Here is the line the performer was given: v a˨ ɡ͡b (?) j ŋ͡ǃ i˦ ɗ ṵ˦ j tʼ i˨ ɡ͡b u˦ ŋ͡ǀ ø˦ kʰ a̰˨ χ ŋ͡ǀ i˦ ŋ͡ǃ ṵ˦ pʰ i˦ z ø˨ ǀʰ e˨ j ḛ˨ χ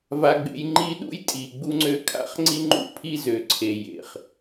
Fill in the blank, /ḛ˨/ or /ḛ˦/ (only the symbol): ḛ˨